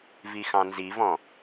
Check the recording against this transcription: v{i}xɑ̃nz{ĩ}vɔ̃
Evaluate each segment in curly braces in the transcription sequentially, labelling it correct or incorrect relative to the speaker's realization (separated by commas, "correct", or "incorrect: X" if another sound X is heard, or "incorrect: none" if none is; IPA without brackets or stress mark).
correct, incorrect: i